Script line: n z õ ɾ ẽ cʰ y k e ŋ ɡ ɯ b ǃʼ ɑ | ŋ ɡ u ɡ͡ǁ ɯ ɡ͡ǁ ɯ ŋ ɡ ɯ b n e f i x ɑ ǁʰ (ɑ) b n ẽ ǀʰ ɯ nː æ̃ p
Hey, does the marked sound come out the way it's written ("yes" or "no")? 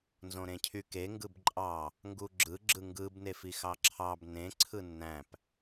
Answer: yes